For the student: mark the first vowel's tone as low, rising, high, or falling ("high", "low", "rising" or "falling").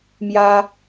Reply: high